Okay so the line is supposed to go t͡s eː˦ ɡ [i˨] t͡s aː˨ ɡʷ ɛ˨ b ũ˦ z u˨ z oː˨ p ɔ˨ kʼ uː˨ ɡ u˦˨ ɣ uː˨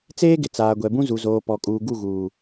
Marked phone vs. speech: incorrect: ɪ˨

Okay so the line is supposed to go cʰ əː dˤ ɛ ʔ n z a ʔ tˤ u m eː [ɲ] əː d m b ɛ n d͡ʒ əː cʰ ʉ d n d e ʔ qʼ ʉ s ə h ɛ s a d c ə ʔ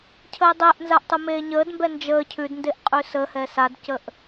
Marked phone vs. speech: correct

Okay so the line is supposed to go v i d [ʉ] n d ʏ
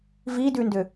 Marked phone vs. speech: correct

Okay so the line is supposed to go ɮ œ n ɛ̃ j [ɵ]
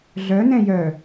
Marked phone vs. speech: incorrect: œ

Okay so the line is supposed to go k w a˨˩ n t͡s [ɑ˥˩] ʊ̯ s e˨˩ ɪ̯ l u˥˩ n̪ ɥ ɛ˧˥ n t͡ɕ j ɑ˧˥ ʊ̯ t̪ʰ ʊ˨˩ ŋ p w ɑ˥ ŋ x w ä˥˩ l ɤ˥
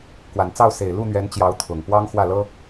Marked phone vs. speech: correct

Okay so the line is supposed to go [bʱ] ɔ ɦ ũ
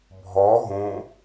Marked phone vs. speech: correct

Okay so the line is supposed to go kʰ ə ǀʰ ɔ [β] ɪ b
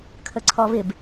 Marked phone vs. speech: correct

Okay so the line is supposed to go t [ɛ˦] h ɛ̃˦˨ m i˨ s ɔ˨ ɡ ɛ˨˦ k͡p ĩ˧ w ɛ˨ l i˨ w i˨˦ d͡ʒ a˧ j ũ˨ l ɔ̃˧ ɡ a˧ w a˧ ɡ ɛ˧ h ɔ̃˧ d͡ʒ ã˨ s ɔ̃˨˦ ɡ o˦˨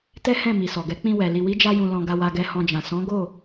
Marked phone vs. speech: correct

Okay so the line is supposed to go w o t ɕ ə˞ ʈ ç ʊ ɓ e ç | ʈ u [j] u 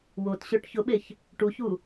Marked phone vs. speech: incorrect: ç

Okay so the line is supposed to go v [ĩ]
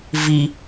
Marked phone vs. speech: incorrect: i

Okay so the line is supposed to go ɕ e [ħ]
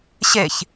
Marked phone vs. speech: incorrect: ç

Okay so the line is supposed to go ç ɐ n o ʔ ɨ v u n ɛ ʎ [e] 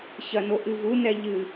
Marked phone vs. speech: incorrect: ɨ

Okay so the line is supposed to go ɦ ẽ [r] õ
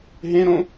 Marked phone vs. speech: incorrect: ɾ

